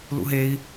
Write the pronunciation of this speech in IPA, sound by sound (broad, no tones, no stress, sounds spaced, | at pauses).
l ṵ ɦ e i̯